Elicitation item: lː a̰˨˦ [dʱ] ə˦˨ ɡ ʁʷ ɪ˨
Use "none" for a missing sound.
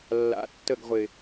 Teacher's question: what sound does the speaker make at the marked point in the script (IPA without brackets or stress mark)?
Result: tː